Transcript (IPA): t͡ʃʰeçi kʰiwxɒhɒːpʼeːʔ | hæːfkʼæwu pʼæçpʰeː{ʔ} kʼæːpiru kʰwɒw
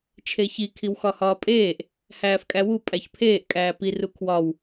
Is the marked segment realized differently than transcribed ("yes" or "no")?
no